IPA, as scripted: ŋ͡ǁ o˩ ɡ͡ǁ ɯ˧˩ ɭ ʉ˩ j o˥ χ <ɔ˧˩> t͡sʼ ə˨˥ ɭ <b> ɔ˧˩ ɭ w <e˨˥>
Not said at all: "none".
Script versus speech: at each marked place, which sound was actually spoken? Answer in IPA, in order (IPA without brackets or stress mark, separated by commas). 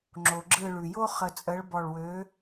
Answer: ə˧˩, b, ø˨˥